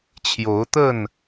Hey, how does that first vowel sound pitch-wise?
rising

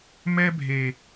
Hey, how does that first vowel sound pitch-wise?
high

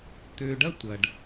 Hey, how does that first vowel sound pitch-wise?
low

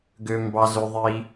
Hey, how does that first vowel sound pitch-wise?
high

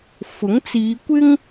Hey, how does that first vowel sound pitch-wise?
rising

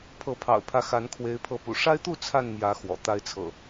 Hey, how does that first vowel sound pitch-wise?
rising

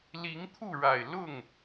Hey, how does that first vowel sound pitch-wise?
rising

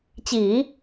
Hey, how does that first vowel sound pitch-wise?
low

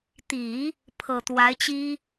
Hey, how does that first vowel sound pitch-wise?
low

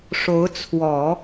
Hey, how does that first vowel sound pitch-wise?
rising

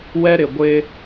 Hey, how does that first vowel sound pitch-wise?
high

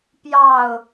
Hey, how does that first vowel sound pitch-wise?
falling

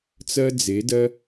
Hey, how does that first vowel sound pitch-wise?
high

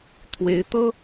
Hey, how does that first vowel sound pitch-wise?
rising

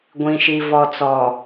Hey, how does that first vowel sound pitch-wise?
low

